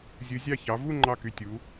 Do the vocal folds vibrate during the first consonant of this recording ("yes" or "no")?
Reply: yes